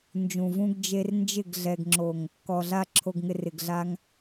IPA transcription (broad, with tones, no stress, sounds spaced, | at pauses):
n d͡ʒ ũ˨ v ũ˧ ɡ d͡ʒ e˧ r n d͡ʒ ɪ˦˨ ɡ ɮ ɛ˨ ɡ ŋ͡ǁ o˨ ŋ | k ɔ˨ ɮ a˧ ǁʰ o˨ ɡ ŋ ɪ˨ r ɪ˨ ɡ ɮ a˧ ŋ